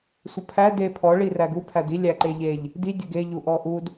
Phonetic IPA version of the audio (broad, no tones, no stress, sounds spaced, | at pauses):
sʷ ə pʰ æ d e pʰ ɔ ɭ i r æ ɡ u pʰ æ d i lʲ æ ǃ e ʎ e ʎ | d i dʲ ə ɡ e ʎ u ʔ ɔ ʔ u d